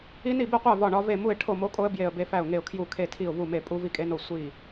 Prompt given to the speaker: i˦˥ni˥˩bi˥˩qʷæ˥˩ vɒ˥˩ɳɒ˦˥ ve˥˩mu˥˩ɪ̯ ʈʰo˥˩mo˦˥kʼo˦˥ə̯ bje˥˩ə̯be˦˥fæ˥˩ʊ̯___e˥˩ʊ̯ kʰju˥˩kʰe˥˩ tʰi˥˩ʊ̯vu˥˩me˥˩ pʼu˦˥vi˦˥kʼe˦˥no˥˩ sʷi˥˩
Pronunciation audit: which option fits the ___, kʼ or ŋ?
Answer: ŋ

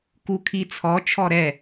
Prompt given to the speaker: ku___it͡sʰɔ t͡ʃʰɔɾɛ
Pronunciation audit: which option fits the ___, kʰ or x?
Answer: kʰ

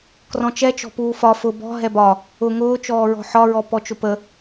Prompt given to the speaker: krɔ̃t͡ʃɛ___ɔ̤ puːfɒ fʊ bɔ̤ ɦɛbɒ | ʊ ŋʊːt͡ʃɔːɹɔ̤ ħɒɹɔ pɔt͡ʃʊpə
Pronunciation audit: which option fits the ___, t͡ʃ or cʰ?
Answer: t͡ʃ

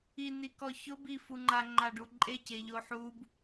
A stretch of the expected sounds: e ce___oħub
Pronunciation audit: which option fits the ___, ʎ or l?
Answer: ʎ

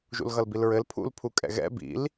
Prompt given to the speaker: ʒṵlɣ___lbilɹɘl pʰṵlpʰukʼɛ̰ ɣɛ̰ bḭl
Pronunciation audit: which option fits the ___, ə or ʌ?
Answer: ʌ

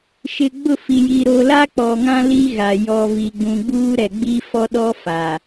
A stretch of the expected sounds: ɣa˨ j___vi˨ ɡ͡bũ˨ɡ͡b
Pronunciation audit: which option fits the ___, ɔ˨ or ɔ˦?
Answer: ɔ˨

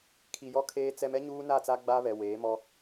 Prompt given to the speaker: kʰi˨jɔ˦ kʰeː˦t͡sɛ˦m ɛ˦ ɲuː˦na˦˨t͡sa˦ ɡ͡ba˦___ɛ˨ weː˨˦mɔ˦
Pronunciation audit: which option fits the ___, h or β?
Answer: β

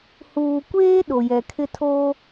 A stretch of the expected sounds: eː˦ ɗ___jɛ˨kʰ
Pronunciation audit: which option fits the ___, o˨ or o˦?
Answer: o˨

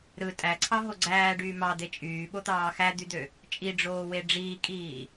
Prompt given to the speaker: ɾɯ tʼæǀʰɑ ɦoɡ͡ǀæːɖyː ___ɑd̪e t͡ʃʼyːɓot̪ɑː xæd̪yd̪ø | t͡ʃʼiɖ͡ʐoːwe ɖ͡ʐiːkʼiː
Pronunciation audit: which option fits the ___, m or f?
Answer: m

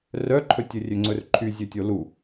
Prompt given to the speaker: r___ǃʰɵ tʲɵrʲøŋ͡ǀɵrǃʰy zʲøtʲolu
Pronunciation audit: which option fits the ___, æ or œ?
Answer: œ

